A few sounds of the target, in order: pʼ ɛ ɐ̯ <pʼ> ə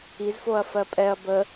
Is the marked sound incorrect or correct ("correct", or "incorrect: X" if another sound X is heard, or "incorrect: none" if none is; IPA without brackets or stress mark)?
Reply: incorrect: b